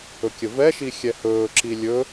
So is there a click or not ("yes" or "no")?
yes